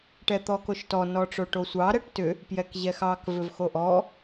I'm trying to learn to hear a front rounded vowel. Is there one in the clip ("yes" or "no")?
yes